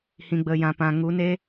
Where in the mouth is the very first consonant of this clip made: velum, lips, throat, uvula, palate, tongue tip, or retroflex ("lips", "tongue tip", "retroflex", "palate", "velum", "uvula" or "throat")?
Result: throat